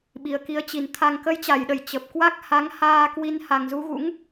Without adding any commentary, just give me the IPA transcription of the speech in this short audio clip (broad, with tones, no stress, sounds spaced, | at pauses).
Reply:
ɓ i˨˩ ə̯ k i˨˦ ə̯ t͡ɕ i˨˩ n t̪ʰ a˧ ŋ k ə˨˦ j t͡ɕ a˧˩ j ɗ ə˧˩ j t͡ɕ ə˨˩ p̚ k w a˦˥ k̚ h a˨˦ ŋ h aː˧ k w i˧ n h a˨˩ ŋ z u˧ ɣ ṵ˧˥ ŋ